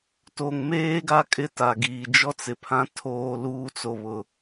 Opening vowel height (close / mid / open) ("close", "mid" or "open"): mid